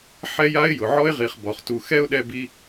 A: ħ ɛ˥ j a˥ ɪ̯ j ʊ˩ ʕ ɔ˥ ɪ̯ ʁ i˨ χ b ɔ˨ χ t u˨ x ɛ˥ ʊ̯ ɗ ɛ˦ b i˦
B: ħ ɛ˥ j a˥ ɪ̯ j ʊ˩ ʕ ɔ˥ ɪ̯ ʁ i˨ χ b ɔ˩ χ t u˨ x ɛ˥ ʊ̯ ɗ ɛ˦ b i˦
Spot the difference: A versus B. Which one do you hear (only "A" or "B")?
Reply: B